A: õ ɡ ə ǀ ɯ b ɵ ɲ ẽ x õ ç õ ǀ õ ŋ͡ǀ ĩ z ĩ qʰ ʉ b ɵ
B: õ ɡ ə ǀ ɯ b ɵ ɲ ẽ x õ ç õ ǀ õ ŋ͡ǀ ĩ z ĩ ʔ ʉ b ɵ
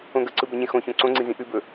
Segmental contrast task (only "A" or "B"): B